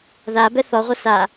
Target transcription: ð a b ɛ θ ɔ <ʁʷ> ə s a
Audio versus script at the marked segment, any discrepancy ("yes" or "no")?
no